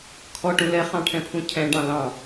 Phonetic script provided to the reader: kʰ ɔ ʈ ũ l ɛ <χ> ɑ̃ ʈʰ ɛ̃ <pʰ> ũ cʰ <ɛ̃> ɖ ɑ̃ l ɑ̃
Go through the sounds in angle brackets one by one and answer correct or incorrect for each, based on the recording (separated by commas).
correct, correct, correct